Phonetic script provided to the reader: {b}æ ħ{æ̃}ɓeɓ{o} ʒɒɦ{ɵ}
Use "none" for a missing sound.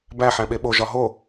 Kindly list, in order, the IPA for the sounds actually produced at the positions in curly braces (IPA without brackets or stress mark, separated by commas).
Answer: b, æ̃, o, o